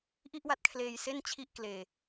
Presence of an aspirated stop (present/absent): present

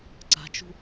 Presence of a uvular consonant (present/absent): absent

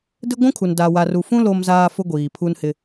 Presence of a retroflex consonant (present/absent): absent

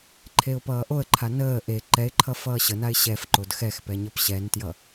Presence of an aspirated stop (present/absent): present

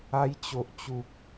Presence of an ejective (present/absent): absent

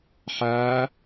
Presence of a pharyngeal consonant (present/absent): present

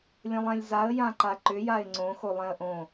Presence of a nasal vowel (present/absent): present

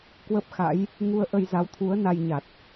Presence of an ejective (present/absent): absent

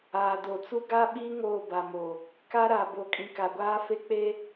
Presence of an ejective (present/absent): present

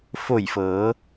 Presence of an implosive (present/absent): absent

